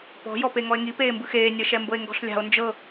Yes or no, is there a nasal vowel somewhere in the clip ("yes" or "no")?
no